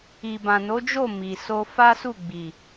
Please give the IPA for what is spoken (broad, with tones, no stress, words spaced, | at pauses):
i˨bã˨ no˨˦d͡ʒo˦˨ mi˨ so˧ fa˦su˦˨ɡ͡bi˨